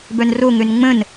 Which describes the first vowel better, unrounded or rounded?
rounded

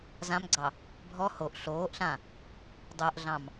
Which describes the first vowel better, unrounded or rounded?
unrounded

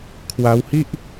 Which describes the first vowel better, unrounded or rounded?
unrounded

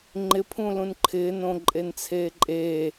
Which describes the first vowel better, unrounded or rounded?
unrounded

